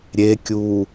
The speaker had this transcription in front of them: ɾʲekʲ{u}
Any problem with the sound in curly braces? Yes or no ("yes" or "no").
yes